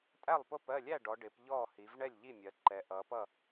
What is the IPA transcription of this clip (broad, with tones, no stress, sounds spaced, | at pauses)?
tʼ æ˥˩ lˠ p ʊ˥˩ p ɜ˥˩ lʲ æ˥˩ ɖ ɔ˩˧ ɖ ɪ˩˧ p ʎ ɔ˥˩ h i˩˧ v ɳ ɛ˥˩ lʲ ʎ i˥˩ mʲ ɜ˩˧ ǃ ɛ˩˧ ʔ ʌ˩˧ p ʌ˥˩